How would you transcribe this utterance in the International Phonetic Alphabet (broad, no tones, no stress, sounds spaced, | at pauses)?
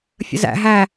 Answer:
fʲ ə̰ z æ̰ ɦ æ